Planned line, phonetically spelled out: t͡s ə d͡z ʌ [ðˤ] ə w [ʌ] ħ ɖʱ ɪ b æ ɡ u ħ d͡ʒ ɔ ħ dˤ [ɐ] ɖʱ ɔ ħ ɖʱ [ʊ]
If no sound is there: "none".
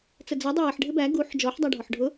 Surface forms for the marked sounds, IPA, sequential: dˤ, ʌ, æ, ʊ

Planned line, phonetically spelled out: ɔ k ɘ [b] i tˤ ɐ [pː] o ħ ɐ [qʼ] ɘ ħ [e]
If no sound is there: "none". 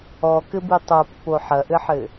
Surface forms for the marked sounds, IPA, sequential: b, pː, ʔ, ɘ

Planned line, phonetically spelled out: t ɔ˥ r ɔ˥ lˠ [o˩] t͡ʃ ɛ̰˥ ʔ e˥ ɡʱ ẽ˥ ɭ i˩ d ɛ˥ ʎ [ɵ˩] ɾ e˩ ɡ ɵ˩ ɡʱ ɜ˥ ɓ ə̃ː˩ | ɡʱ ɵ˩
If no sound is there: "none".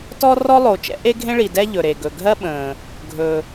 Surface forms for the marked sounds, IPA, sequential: o˩, ɵ˩

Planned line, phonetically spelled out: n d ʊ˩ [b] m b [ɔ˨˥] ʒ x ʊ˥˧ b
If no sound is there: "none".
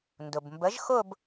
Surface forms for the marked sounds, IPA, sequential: b, ə˨˥

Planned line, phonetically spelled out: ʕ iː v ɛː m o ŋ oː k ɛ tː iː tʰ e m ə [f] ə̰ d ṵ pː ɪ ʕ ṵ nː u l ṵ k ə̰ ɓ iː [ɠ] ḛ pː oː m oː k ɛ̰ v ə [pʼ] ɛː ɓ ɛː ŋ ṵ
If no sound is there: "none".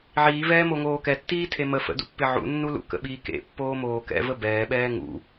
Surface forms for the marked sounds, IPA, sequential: f, k, b

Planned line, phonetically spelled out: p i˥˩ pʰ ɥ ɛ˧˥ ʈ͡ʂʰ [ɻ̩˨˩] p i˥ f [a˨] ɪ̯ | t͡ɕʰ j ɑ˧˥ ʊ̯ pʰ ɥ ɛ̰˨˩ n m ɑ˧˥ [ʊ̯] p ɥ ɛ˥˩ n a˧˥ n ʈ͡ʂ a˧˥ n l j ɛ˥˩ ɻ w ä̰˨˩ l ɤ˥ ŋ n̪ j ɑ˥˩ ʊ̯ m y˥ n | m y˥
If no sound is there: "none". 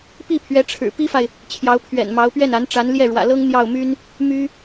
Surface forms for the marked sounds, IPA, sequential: ɻ̩˨˩, a˨, ʊ̯

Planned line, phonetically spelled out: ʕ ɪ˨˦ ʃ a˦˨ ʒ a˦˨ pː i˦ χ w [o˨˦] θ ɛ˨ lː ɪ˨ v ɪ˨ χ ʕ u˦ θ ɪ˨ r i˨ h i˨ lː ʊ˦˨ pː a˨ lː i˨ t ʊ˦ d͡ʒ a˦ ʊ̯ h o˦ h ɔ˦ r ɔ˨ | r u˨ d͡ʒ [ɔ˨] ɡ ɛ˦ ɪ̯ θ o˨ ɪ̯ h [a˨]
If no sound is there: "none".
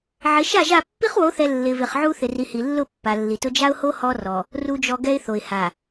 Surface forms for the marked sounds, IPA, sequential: o˨˦, ɔ˨, a˨

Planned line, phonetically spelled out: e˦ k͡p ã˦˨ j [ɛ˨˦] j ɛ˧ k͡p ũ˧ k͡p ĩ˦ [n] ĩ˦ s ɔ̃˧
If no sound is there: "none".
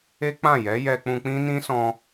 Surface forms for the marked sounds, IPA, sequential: ɛ˨˦, n

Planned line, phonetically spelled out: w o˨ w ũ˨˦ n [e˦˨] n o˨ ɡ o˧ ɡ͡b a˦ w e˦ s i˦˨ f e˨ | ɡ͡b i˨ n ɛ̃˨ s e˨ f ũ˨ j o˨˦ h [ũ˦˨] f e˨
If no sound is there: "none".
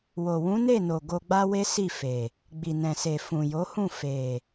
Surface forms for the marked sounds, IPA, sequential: e˦˨, ũ˦˨

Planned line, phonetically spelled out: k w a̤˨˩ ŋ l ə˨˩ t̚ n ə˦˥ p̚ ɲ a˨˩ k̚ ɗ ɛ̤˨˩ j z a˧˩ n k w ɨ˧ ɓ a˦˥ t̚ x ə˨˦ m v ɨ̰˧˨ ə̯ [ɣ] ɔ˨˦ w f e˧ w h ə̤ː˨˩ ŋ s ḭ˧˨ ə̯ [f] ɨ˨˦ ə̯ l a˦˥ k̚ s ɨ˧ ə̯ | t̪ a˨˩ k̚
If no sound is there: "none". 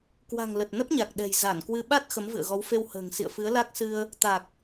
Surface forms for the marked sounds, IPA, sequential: ɣ, f

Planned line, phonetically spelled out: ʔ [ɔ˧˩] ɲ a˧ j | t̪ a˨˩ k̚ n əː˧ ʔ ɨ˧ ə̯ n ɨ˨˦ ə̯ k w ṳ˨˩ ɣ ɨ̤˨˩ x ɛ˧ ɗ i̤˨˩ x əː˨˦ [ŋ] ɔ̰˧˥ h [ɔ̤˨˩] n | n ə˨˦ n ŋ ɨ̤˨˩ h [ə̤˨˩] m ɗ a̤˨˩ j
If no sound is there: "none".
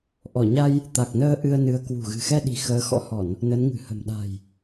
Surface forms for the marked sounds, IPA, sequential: ɔ˧˩, x, ɔ˧˩˨, ə̤˨˩

